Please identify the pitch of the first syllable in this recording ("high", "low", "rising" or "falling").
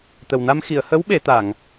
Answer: low